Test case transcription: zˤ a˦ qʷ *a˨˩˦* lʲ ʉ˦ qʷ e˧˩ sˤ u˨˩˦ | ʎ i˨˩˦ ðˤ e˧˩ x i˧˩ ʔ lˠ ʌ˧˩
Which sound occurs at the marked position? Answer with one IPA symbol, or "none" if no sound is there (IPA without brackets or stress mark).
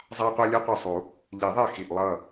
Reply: a˦